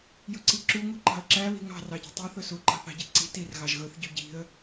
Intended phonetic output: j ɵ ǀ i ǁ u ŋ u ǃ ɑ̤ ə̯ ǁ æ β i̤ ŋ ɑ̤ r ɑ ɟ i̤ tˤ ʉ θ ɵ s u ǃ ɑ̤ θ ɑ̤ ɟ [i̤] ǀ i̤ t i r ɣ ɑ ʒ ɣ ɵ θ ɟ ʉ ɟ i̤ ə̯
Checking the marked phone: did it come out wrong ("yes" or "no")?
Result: yes